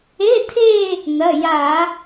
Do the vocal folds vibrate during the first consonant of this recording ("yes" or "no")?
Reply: no